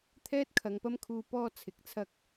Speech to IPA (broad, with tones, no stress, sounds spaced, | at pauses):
t̪ʰ ɛː˥ t̚ kʰ ɐ˨ ŋ p ɐ˥ m kʰ uː˧ p ɔː˥ t͡sʰ ɪ˨ k̚ t͡sʰ ɐ˥ k̚